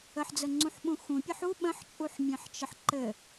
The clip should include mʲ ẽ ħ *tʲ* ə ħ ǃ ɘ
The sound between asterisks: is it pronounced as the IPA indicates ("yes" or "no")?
no